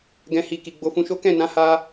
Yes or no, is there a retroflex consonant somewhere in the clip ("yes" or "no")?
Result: no